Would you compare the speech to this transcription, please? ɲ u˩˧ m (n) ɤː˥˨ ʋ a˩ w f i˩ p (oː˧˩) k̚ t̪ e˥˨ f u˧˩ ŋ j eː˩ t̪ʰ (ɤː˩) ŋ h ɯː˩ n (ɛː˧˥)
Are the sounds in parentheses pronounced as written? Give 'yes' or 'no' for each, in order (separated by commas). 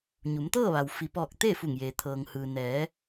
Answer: no, no, yes, no